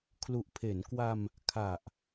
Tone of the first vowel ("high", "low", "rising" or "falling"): low